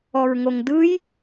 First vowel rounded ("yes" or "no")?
yes